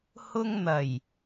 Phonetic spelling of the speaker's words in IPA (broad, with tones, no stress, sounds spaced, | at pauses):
h ʊ˧ ŋ n̪ ɐ˨˩ j